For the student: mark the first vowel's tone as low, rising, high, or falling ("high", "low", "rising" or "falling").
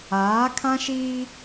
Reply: rising